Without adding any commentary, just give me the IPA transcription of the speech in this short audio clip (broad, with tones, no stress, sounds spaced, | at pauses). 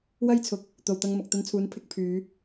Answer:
w ɐ˥ j t͡sʰ ʊ˨˥ k̚ | t̪ o˨ w t̪ ɐ˧ ŋ m ɐ˨ k̚ t̪ ɐ˧ n t͡sʰ uː˨˥ n pʰ ɪ˨˥ k̚ pʰ yː˨˧